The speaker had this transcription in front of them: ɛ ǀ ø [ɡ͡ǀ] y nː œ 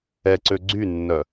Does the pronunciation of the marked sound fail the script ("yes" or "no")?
no